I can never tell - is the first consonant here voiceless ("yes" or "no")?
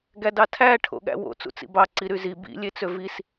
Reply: no